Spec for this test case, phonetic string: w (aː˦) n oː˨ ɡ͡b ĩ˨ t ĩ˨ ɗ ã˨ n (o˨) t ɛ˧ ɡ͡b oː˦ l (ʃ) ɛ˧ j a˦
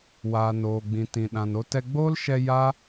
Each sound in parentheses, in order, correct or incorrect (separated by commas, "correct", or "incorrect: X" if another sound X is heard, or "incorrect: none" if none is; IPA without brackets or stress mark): incorrect: aː˨, incorrect: o˧, correct